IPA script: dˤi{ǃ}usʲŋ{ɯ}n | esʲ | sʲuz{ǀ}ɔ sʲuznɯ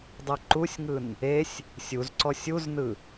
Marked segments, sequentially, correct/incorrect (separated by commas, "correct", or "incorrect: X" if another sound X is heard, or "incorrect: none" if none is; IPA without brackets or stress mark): correct, correct, correct